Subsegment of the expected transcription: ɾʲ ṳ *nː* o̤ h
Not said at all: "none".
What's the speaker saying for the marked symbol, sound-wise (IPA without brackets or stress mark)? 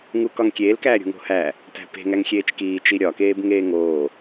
ŋ